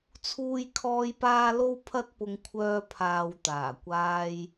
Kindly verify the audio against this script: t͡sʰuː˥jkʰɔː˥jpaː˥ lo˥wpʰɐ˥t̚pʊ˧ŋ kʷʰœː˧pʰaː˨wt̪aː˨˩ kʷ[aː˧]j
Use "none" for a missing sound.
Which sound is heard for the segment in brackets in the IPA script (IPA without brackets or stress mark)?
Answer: aː˧